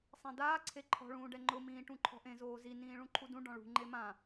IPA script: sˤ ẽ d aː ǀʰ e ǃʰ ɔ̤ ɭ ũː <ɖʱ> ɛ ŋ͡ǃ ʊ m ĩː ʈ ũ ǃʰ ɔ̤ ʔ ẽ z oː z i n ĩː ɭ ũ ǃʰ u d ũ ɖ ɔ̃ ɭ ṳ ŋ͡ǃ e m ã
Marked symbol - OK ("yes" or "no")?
no